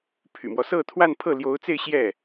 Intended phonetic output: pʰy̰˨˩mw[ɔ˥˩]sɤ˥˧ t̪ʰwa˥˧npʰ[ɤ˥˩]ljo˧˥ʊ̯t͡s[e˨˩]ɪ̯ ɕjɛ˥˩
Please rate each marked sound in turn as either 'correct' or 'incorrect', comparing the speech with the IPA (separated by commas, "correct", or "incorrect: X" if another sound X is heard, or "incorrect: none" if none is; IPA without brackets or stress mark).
incorrect: ɔ˦, correct, incorrect: e˥˧